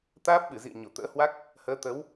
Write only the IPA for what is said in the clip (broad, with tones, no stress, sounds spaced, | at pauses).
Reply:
t̪ aː˦˥ p̚ ɓ ɨ˧˩ z ḭ˧˨ ə̯ ɲ o˧˩ t̪ ə̰ː˧˥ h w a˦˥ k̚ | h əː˨˦ t̪ ə˨˦ w